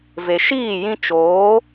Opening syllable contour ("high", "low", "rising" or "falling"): low